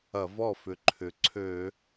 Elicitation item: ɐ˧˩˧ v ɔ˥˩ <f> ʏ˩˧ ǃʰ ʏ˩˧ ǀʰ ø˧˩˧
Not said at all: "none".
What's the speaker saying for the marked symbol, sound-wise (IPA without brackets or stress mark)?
f